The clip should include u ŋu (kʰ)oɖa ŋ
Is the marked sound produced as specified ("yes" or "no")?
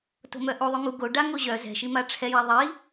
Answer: no